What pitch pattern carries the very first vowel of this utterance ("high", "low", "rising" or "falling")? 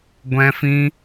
high